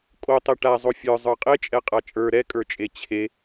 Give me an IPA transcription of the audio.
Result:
kʼ o tˤ e ʈ a zˤ o fʲ ə˞ zˤ ə˞ qʼ e t͡ʃʼ ɛ qʼ a t͡ʃʼ ə˞ ɾ ɛ kʼ ə˞ t͡ʃʼ e t͡ɕʰ e

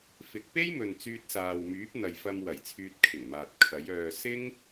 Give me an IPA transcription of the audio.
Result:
f ɪ˨˥ k̚ p e˥ j m ɵ˨ n t͡s yː˧ t̚ s aː˨ w m yː˨˥ p̚ n̪ ɐ˨ j f ɐ˧ m w ɐ˨˩ j t͡sʰ yː˧ t̚ kʰ ɪ˨˩ ŋ m aː˨ t̚ kʰ ɐ˨˥ j œː˧ s ɪ˥ ŋ

